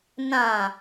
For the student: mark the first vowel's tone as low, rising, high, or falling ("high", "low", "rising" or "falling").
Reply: low